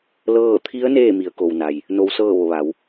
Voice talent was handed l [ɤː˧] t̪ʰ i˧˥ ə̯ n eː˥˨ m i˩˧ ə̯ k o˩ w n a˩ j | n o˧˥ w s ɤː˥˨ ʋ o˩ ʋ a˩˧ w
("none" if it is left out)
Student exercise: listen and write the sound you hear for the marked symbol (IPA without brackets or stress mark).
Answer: ɤː˥˨